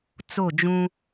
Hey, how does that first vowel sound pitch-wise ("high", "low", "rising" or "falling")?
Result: falling